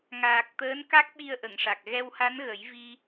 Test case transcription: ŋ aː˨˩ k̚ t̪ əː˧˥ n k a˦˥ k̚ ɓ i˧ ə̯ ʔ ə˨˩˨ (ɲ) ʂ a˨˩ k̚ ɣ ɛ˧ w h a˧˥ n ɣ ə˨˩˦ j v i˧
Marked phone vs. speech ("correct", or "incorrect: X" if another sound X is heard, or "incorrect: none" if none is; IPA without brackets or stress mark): incorrect: ŋ